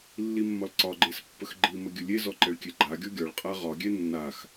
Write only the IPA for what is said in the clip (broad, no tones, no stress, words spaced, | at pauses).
lːimːɒlǀɒɡ͡ǃes pːəxɡ͡ǃimə ɡʲəlʲezɔ ǃɛɭkʲɛɡ͡ǃaɡʲɔ ɡʲɒɭqʼa ʁɒɡʲɛ nːax